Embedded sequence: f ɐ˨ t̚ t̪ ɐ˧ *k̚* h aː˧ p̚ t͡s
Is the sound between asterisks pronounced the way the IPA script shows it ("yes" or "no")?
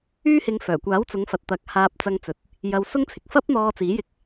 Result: yes